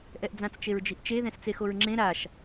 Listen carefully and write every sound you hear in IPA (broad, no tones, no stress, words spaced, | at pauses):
ʔɛʔd͡zãt͡s t͡ʃeɹd͡ʒiʔt͡ʃe ðɛ̃st͡sexoɹŋ͡ǁẽ ɾaʃ